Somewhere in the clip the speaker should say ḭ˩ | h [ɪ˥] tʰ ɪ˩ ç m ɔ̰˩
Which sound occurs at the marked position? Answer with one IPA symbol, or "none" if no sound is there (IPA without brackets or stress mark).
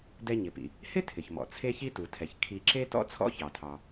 ɪ˥